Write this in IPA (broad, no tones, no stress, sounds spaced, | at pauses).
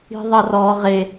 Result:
i̤ ðˤ ɐ r ɔ ʁ e